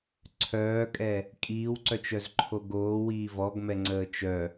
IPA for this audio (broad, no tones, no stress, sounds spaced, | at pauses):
ǀʰ œː kʼ ɛ | kʼ iː w ǀ œ t͡ʃ œ z ǃʰ o ɡ oː w iː v ɔ ɡ m ɛ ŋ͡ǀ əː t͡ʃ œ